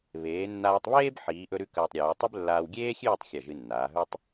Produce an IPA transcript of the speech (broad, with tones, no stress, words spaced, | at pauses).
βeː˩˧nːaː˧tˤβeː˥b ħiː˩˧ʔɵ˧ɾʉ˧ kɐː˧tˤɾʲʉː˩˧tˤʉ˥b lːaː˧wɡʲeː˥xʲʉː˥˧tˤ xʲɐ˧˩ʒɨ˧nːaː˩˧ɦɵ˥tˤ